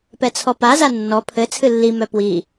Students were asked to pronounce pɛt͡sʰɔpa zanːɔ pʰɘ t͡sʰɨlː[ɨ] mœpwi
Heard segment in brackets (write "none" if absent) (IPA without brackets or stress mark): i